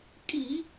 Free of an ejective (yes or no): no